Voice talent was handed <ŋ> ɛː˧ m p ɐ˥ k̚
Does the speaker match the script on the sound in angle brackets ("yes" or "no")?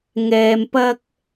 yes